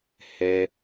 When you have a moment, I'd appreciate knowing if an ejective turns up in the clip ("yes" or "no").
no